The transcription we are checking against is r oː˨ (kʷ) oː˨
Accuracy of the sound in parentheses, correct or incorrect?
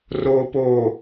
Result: incorrect